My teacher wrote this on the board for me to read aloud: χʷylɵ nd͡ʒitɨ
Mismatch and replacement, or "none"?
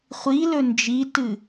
y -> i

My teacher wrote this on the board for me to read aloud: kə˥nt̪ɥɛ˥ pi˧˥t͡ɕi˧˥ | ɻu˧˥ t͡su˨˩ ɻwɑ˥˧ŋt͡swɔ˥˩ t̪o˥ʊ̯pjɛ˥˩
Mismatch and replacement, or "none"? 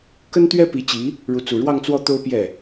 none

